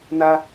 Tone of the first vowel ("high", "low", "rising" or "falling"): high